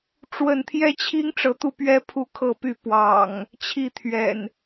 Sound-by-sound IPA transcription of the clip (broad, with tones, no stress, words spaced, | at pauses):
ʈ͡ʂwə˥˨n t̪ʰjɛ˦t͡ɕʰi˦ŋ ʈ͡ʂɤ˨˦t̪u˥˨pɥɛ˦ pʰu˥˨kʰɤ˥˨py˥˨ pwɑ̰˨˩ŋ | t͡ɕʰi˥˨t̪ʰɥɛ̰˨˩n